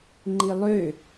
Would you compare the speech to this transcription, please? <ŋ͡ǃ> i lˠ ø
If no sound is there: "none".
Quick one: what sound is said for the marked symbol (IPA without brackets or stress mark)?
ŋ͡ǃ